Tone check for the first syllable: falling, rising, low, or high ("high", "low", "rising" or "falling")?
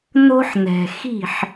high